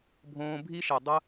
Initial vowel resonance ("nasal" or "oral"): nasal